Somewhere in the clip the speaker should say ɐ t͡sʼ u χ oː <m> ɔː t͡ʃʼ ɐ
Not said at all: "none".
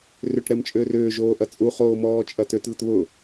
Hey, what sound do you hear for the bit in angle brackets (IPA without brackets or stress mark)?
m